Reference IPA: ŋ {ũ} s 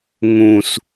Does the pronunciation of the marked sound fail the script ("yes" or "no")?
no